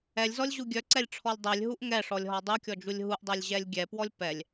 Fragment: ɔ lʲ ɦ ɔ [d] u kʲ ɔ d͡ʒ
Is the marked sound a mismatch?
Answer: yes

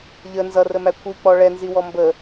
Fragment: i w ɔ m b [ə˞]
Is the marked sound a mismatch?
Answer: yes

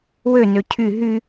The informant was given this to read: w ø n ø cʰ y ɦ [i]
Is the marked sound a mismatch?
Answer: yes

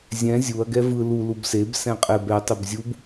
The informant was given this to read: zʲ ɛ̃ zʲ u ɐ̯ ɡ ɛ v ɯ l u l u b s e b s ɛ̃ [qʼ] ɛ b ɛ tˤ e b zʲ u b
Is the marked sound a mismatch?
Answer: no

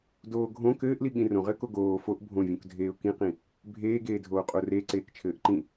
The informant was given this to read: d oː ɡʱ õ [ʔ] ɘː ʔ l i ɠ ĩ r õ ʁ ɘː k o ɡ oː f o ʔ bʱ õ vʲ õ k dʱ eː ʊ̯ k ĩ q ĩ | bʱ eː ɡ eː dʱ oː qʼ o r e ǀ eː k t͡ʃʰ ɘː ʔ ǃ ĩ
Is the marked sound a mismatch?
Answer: yes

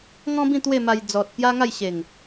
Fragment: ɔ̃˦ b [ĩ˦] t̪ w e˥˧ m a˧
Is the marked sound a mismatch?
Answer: yes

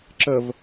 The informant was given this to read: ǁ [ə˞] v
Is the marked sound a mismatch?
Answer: yes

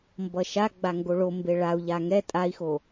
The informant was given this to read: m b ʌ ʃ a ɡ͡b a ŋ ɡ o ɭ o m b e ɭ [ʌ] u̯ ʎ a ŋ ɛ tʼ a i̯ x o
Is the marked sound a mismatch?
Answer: yes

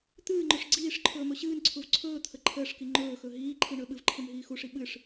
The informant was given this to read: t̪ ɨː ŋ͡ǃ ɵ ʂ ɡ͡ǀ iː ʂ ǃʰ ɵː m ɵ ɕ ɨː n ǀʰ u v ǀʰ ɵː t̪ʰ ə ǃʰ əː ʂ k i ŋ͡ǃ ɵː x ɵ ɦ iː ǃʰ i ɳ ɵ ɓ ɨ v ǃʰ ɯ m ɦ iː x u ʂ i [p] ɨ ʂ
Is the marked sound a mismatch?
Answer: yes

